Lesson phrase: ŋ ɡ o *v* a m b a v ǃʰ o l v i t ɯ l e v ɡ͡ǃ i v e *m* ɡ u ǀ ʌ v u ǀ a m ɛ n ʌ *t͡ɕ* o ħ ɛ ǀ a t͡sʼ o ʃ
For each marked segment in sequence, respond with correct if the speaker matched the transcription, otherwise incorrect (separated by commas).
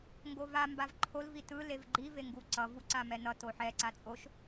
correct, incorrect, incorrect